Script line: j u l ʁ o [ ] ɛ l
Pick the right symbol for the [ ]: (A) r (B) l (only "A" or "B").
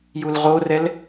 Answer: A